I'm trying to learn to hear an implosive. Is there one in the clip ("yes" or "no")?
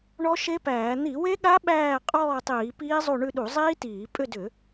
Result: yes